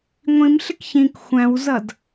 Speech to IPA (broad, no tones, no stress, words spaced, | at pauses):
ŋʷĩmɬɪk çĩk xʷæ̃wzʌd